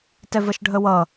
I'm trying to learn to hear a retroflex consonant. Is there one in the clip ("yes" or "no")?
yes